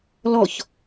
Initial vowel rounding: rounded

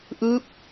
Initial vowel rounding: unrounded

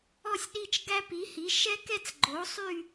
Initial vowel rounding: rounded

